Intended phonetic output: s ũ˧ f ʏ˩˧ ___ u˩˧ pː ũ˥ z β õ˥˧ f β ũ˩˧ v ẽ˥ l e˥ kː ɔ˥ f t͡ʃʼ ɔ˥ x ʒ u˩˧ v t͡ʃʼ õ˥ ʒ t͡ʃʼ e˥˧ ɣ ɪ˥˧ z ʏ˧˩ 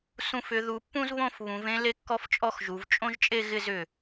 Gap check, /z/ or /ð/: ð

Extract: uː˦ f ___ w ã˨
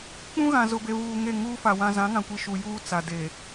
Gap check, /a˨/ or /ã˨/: a˨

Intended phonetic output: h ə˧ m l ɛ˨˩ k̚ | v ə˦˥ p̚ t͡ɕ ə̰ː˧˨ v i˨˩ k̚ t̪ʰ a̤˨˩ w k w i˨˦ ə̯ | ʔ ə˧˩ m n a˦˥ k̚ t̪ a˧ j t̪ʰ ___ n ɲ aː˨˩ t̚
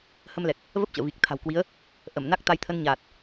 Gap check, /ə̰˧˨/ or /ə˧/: ə˧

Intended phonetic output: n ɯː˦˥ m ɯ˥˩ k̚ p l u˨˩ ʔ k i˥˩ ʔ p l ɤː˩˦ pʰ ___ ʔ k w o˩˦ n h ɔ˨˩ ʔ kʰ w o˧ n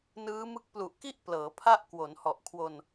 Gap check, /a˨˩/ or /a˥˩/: a˥˩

